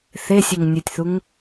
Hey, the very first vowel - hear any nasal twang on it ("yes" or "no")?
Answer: no